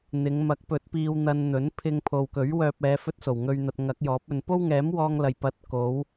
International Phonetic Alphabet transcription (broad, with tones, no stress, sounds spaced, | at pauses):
n̪ ɪ˨˧ ŋ m ɐ˨˥ k̚ p ɵ˨˥ t̚ p iː˧ w n̪ ɐ˧ n n̪ ɵ˨˥ n pʰ ɪ˧ ŋ pʰ o˨ w k ɵ˨˥ ɥ w œː˧ p̚ ɛː˨˧ f ɵ˥ t̚ s o˨˩ w ŋ ɵ˧ ɥ n̪ ɐ˧ t̚ ŋ ɐ˨˥ k̚ j ɔː˨˥ p̚ ɵ˧ n p o˥ w ŋ ɛː˨˥ m w ɔː˧ ŋ l ɐ˨˩ j p ɐ˨˥ t̚ k o˨˧ w